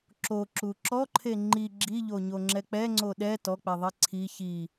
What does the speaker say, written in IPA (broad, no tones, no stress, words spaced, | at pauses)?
ǁoǁu ǁɔǃʰe ŋ͡ǃi ɡ͡ǁiʎoɲoŋ͡ǁɛ k͡pɛŋ͡ǀo ɗɛ tɔk͡pɛðˤe ǀʰi çi